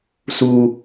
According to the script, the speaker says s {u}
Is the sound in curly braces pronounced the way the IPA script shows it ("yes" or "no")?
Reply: yes